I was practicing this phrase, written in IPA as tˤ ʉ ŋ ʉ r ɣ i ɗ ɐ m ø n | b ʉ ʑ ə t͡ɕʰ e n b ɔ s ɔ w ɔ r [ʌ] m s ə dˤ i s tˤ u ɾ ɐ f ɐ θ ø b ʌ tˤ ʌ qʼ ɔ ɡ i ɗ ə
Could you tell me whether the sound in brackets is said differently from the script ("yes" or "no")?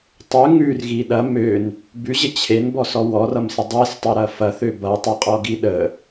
no